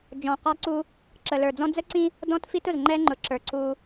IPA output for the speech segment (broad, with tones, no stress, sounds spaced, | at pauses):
d͡ʒ ɔ̃˨ q ɑ˦ ǀ u˦ | ǁ ə˨ l ə˞˨ d͡z ɔ̃˦ d͡z ə˦ ǀ ĩ˦ | d ɔ̃˦ t f i˦ t ʊ˨ z ŋ͡ǃ ɛ˦ ŋ͡ǃ ʊ˨˦ ǁ ə˞˨ ǀ u˦